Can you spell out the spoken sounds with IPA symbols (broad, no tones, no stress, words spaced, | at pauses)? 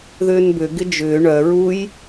ðʏːnbʏ ɡɪd͡ʒʏː ɳœ ɹuj